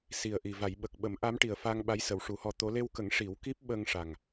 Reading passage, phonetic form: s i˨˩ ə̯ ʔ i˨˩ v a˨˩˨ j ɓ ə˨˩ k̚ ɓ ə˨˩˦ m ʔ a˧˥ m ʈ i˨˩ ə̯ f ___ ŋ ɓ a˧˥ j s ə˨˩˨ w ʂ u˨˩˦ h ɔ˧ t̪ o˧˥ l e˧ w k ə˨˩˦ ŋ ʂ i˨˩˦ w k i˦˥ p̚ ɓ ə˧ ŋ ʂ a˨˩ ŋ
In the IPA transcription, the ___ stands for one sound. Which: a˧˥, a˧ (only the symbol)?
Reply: a˧